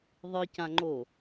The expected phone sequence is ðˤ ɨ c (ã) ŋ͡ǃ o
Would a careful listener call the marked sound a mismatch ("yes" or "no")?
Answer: no